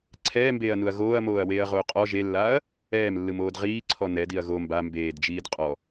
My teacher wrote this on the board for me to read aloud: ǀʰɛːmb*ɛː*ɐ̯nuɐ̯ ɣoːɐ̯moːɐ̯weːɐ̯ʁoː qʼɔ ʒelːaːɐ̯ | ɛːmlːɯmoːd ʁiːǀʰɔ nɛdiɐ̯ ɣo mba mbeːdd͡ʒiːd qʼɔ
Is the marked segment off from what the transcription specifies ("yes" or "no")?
yes